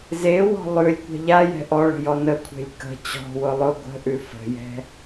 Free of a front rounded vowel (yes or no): yes